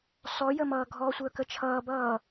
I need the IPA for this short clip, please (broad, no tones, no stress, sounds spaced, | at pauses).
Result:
s ɔ j ə m ʌː ɡʱ ɔ sʷ əː k ə t͡ʃʰ ʌː b ʌː